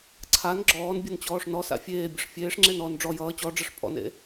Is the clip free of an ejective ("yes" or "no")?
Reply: no